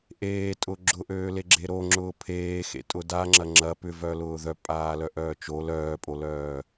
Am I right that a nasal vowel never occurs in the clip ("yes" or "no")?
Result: yes